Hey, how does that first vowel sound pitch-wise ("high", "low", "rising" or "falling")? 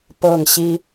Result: falling